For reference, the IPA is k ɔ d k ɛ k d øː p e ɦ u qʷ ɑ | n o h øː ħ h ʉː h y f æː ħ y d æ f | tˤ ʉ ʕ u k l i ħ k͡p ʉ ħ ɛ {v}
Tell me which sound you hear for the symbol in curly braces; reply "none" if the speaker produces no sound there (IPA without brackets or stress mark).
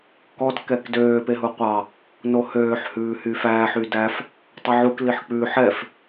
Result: f